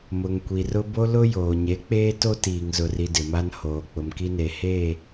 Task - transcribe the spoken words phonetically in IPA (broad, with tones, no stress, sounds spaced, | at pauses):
m ʊ˨ ŋ kʷ i˨ r ʊ˦ b o˦ l ʊ˦ j oː˨ ɲ e˨˦ k͡p eː˦ t o˦ t iː˨ ŋ z ʊ˨ r i˨ d ɪ˨ m a˦ n h oː˨ k͡p ʊ˨ m k i˦ n e˨ h eː˦˨